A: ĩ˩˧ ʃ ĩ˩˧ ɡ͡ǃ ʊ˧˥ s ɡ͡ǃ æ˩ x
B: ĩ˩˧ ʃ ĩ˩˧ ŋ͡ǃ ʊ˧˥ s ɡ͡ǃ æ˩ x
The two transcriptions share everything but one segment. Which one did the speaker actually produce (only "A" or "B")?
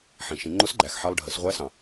B